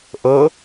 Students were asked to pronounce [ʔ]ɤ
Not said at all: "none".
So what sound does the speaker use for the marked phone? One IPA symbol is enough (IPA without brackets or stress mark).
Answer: ʔ